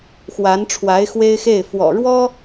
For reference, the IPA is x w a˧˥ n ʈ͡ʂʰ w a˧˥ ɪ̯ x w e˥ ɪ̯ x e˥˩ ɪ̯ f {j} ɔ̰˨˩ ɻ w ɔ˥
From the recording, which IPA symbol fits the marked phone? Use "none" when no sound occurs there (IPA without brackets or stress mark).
w